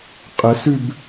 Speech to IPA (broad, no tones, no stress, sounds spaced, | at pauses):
qʼ ə s ʉ b